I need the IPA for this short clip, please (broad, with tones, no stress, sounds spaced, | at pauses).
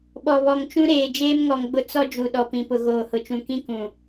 ɓ ɔ˨ β ɔ˨ ŋ t͡ʃ ũ˦ ɾ eː˨ d͡ʒ eː˦ m ŋ ɔ˨ ŋ ɡ͡b ʊ˦ t͡s ɔ˦ d͡ʒ u˨ ɗ ɔ˨ p ĩ˨ p ʊ˨ ɣ oː˨ h ʊ˨ t͡ʃ ũ˨ k ĩ˦ k ũ˨